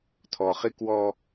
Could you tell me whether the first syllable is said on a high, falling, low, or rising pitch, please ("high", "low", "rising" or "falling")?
low